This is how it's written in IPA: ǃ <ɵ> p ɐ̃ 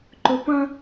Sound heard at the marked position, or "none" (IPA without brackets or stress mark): ɵ